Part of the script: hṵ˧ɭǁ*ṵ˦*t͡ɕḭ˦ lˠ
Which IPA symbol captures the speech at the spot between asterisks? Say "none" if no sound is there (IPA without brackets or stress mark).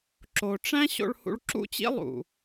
ṵ˦